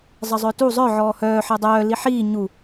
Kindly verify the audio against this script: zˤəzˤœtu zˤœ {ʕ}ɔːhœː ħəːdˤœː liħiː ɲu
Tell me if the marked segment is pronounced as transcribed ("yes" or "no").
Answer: yes